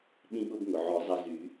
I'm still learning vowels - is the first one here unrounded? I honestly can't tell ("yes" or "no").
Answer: yes